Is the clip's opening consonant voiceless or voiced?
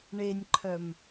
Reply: voiced